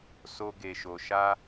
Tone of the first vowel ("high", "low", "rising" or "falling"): high